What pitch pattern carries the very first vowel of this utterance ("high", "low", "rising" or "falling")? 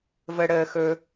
high